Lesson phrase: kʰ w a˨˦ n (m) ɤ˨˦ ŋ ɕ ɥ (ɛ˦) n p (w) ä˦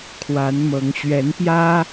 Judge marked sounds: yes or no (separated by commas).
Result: yes, no, no